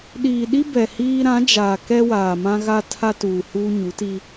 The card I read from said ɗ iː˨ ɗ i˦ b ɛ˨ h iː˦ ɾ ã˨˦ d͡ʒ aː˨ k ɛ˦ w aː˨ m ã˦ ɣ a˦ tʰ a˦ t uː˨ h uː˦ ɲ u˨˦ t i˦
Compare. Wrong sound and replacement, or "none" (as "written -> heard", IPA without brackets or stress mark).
none